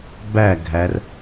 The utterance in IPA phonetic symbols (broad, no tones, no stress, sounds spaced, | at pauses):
b æ ɡʱ æ r